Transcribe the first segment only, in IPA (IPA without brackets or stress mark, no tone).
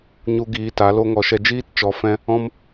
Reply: ɲ